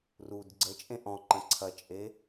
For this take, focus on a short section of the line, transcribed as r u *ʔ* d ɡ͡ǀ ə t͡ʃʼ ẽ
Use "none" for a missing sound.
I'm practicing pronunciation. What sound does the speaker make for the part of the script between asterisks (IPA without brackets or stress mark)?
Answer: none